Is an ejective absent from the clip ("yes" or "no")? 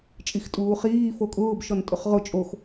no